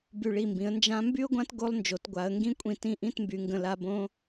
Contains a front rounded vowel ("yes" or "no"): yes